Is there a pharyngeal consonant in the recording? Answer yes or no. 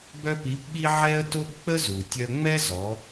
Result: yes